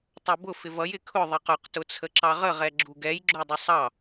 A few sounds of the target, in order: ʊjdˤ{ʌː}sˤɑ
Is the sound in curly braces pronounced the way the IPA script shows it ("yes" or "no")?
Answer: no